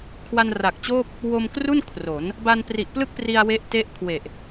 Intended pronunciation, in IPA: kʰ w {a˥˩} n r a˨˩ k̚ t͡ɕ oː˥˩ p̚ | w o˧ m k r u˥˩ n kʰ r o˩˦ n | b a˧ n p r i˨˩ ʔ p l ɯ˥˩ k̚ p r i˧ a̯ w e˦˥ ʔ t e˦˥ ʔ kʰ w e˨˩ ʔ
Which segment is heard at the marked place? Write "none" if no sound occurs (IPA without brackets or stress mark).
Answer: a˧